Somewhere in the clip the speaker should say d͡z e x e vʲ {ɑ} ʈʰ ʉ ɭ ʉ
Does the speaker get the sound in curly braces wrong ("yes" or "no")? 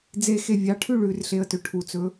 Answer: no